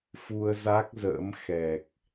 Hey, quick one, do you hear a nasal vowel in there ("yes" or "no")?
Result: no